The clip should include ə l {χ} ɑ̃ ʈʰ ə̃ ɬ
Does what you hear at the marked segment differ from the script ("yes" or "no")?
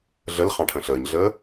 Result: no